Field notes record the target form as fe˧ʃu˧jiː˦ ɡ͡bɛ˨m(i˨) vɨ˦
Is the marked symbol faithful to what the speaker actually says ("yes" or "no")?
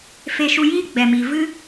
yes